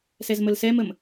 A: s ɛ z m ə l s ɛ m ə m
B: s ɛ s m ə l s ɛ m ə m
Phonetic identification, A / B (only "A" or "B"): A